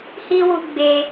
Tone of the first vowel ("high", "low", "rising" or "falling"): high